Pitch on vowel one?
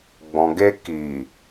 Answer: low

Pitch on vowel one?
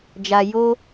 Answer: low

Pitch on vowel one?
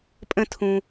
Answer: falling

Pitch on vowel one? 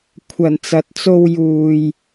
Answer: low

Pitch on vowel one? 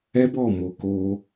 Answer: high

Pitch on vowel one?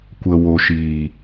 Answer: low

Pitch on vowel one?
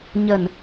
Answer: low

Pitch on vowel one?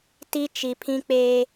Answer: high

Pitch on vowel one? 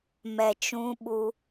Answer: low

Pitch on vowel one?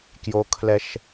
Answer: high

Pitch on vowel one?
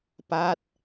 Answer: falling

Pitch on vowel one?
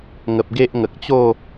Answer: low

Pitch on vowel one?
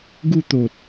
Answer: falling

